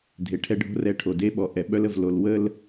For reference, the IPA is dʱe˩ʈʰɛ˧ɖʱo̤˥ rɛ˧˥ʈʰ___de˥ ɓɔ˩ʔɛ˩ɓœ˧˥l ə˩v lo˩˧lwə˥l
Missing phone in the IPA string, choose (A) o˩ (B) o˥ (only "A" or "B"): A